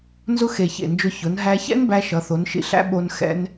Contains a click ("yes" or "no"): no